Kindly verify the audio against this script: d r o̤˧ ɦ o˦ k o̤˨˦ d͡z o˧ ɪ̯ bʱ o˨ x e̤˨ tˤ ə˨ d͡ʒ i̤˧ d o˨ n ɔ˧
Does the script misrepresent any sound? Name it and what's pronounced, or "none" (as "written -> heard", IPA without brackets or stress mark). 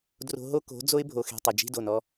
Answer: none